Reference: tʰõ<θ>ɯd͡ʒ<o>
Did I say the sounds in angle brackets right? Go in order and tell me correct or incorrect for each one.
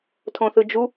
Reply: correct, incorrect: u

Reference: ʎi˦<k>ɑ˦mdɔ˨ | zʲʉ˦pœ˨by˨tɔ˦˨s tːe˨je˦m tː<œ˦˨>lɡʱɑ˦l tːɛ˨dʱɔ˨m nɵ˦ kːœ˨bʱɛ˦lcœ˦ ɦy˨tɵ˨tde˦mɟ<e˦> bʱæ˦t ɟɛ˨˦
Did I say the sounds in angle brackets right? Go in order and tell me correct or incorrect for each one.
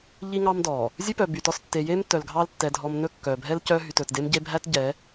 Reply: incorrect: ŋ, incorrect: œ˨, correct

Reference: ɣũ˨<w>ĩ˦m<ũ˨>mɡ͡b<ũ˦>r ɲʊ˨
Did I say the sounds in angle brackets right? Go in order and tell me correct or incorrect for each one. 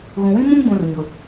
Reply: correct, incorrect: ũ˦, incorrect: ũ˨

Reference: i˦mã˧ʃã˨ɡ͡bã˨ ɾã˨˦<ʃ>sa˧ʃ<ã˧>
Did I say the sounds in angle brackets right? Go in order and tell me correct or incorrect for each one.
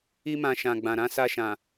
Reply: incorrect: none, incorrect: ã˨

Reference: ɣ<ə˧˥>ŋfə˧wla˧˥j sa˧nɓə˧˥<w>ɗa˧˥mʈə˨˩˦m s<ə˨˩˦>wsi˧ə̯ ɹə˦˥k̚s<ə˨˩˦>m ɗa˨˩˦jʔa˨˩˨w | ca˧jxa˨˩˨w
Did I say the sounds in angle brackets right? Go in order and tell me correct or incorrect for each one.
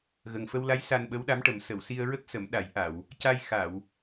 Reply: incorrect: ə˨˩, correct, incorrect: ə˨˩˨, correct

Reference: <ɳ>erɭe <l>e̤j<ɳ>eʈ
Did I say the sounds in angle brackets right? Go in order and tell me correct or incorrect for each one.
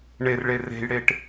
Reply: correct, incorrect: r, incorrect: ɽ

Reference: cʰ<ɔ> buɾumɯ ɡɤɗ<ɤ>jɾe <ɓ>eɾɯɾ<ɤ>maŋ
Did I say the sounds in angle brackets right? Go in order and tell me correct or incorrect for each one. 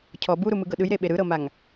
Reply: correct, incorrect: ɯ, correct, correct

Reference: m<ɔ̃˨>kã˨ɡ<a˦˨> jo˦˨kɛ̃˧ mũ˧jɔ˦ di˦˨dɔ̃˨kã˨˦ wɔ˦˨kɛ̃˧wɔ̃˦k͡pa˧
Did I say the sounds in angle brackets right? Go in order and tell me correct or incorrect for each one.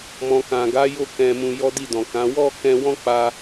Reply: correct, incorrect: a˨˦

